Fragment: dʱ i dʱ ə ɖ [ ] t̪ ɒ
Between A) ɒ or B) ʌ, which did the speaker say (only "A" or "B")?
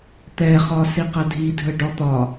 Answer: A